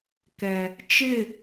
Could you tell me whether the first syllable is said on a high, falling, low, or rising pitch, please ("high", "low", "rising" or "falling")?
low